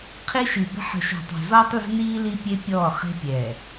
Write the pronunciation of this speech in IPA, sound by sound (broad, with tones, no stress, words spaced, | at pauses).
qʰi˦ʃi˨bə̤˦ ħə̤˨ʃɔ̤˨tˤe̤˨ zɔː˦tˤle̤˦niː˦ li˦pʲe˦pʲɔː˦˨ χe̤˦pʲɛː˨